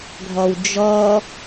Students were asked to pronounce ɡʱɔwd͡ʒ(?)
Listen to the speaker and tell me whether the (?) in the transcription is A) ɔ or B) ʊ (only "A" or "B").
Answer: A